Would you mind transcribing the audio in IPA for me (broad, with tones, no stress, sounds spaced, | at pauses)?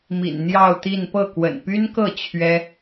m ḭ˨˩ n n̪ j ɑ˥˧ ʊ̯ t̪ i˥˧ n p ɤ˥˩ k w ə̰˨˩ n p y˥ n k ɤ˥˩ t͡ɕʰ ɥ ɛ˥